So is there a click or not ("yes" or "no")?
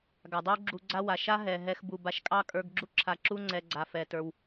yes